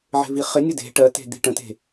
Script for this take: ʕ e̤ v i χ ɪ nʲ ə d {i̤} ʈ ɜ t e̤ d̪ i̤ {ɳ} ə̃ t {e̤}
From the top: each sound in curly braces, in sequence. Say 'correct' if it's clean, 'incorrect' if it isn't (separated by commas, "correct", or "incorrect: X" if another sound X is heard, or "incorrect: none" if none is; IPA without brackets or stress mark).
incorrect: e̤, incorrect: ʈ, correct